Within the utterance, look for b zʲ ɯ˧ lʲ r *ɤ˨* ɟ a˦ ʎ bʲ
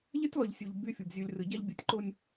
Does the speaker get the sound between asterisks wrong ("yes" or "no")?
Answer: yes